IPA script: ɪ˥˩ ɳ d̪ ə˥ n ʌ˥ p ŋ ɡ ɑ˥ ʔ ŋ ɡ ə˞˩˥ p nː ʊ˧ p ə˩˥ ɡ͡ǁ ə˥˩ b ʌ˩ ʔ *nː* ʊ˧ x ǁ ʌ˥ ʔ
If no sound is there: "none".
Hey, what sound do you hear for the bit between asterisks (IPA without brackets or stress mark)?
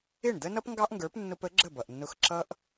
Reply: nː